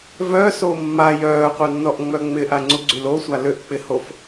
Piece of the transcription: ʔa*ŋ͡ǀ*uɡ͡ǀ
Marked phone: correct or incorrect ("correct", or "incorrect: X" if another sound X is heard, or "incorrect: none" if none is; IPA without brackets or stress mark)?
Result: correct